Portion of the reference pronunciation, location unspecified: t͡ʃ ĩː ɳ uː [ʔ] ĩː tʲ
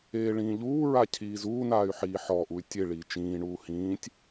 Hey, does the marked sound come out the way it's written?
no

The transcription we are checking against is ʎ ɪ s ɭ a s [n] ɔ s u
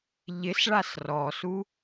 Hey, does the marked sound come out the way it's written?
no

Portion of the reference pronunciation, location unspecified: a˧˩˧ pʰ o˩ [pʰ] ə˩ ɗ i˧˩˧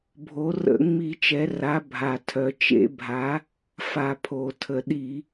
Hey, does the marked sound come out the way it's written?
no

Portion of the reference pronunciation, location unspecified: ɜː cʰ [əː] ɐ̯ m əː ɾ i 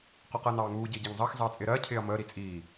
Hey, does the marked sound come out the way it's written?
no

